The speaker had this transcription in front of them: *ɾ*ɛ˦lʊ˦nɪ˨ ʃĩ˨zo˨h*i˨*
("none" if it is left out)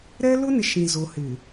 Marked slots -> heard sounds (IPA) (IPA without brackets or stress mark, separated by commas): ɾ, ɪ˨